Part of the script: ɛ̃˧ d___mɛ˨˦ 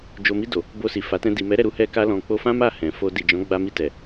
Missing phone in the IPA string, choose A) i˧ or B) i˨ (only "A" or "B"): B